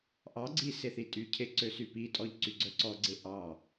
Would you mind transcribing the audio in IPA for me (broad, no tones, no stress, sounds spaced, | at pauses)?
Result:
ʔ ɑ ɡ͡ǀ i s e θ i tʼ y cʰ e ǀ ø s y p i tʼ ɔ ʎ ǀ y ɡ͡ǀ œ ǀ ɔ ɡ͡ǀ e ʔ ɑ